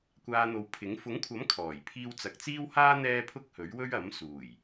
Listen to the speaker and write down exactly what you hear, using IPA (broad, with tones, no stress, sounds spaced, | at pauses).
kʷ aː˧ n̪ o˨˧ w pʰ ɪ˨˥ ŋ f ʊ˨˥ ŋ kʷʰ ɐ˨˥ m kʰ ɔː˨˩ j pʰ iː˥ w t͡s ɐ˨ k̚ t͡s iː˥ w h aː˥ n̪ ɛː˥ pʰ ʊ˥ k̚ h ɵ˨˥ ɥ w ɵ˥ ɥ ɐ˨˥ m s uː˨˩ j